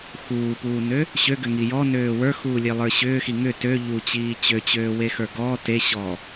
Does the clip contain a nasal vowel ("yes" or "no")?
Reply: no